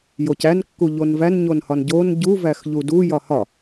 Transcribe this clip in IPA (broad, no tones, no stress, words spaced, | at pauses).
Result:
jocæn kːuʎonvæn ɲonhɒnɟon ɟu væxʎudu jɒhɒ